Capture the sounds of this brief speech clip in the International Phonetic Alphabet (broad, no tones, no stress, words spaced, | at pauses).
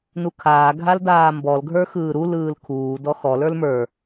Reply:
nukʰaː ɡʱaldaːmbɔl ɡʱə˞xɯːɾu lɯːlkʰuː dɔxɔ lə˞lmə˞